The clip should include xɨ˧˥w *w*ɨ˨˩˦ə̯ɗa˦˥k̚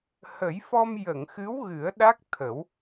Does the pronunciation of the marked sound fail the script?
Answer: yes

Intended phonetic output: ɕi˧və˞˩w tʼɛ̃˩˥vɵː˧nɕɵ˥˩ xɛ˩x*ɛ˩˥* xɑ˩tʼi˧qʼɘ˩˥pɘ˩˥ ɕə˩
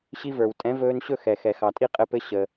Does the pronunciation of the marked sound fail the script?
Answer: yes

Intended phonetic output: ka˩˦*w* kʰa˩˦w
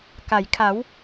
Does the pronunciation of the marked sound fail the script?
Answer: yes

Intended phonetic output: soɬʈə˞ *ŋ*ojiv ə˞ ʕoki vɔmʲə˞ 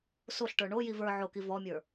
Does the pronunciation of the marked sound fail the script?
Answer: yes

